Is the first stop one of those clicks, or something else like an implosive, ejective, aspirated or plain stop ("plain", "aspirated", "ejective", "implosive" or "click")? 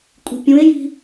ejective